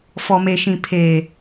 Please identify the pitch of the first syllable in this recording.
low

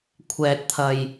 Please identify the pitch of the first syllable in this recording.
low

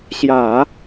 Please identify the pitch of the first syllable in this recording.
low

